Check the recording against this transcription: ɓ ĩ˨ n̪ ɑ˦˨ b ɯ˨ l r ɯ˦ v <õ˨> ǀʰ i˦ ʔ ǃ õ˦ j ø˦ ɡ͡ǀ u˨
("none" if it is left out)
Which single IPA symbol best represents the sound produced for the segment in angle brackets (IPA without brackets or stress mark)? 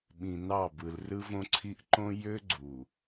õ˦